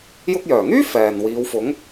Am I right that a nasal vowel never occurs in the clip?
yes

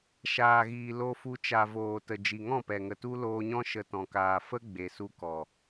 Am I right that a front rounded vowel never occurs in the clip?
yes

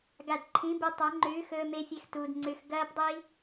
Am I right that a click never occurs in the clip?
no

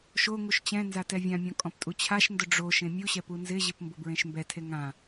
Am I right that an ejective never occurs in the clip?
no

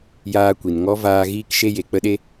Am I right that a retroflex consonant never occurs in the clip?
yes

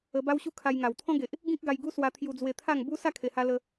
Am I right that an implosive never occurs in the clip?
yes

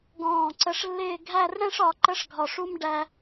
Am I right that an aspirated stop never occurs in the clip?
yes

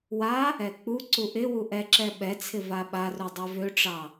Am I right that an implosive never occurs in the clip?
no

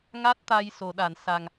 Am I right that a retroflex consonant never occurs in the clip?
yes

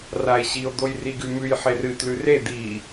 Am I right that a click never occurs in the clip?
yes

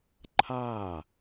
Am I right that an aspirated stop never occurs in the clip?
no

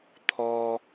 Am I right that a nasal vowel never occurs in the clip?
yes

